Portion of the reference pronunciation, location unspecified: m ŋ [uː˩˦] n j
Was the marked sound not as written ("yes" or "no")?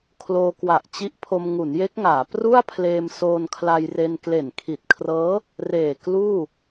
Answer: yes